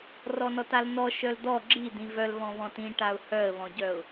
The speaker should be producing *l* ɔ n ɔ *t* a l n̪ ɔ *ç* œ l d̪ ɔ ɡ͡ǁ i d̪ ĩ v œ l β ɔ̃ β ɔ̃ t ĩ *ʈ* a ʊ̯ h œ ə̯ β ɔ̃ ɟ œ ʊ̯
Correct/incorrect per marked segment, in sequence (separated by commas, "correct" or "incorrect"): incorrect, correct, incorrect, correct